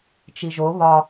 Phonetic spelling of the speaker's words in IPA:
t͡ʃ i ʒ o β ɒ

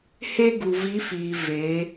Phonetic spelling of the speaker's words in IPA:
h e˦ ɡ u˨ v i˨˦ f iː˨ v eː˨˦

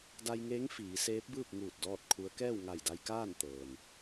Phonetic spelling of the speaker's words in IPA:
d a˧ j ŋ eː˧˥ ŋ f iː˩˧ s eː˧˥ p̚ b ɯː˥˨ p̚ ŋ uː˧˩ t̚ d ɔː˥˨ t̚ kʰ u˧˥ ə̯ k ɛː˥˨ w ŋ a˧˩ j d a˧ j k aː˥˨ n t̪ ɤː˩ n

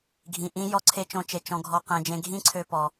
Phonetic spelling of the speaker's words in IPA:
ɡʱ ĩ˧ ʔ ĩ˦ j ɔ˦ ǀʰ e˦ t͡ʃ õ˦ t͡ʃ e˧ t͡ʃ ɔ̃˧ ɡʱ ɔ˧ q ẽ˧ d͡ʒ ẽ˧ ɡʱ ĩ˦ ǀʰ ø˧ p ɔ˧

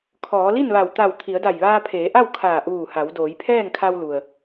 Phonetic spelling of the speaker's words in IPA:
kʰ ɔː˩˧ l i˥˨ n ʋ a˧˩ w t̪ a˧˩ w t̪ʰ i˩˧ ə̯ d a˧˩ j ʋ aː˧ pʰ eː˩˧ ʔ a˥˨ w kʰ aː˧˩ ʔ uː˧˩ h a˩˧ w d oː˩˧ j pʰ ɛː˥˨ ŋ kʰ a˧ w l u˩ ə̯

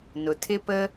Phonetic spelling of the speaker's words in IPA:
n ʊ˩ tʰ ɪ˥ p ə˥

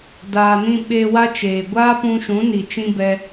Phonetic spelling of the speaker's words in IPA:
d aː˧ n ĩ˦ ɓ e˧ w a˧ t͡ʃ eː˨ ɡʷ aː˦ p ũ˧ ʃ ũ˨˦ n i˨ t͡ʃ ĩ˧ b ɛ˧

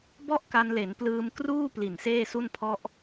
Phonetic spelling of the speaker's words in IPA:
b ɔ˥˩ ʔ k a˧ n l e˩˦ n p l ɯː˧ m k r uː˥˩ p l i˨˩ n s eː˥˩ s u˥˩ n pʰ ɔ˥˩ ʔ

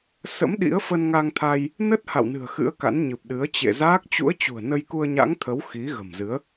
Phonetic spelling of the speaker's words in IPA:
s ə̰˧˥ m ɗ ḭ˧˥ ə̯ f ə˧ n ŋ a˧ ŋ t̪ʰ a˧ j | n ə˦˥ t̚ h a̰˧˨ w n ɨ̤˨˩ ə̯ x ɨ̰˧˥ ə̯ k a̰˧˥ n ɲ ɨ˨˩ p̚ ɗ ɨ˨˦ ə̯ t͡ɕ ḛ˧˨ z aː˦˥ k̚ t͡ɕ ṵ˧˥ ə̯ t͡ɕ ṳ˨˩ ə̯ n ə˧ j k u˧ ə̯ ɲ a̰˧˥ ŋ t̪ʰ ə˨˦ w x i˨˦ ɣ ə̤˨˩ m z ɨ˨˦ ə̯

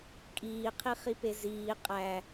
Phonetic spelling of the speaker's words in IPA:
kʼ iː qʰ i χ i p e z iː qʼ æ

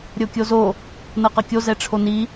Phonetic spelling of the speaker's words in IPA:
ɾʲ o kʲ o z o | n ɤ q ɤ kʲ o z ɛ ʈ͡ʂʰ o n i

